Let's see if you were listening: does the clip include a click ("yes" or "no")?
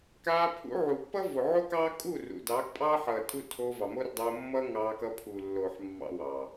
no